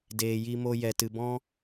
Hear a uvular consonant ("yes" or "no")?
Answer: no